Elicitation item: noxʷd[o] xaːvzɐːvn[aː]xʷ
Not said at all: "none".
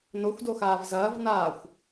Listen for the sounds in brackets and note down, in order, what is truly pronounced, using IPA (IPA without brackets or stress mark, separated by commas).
o, aː